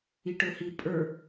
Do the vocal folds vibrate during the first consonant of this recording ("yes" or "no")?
no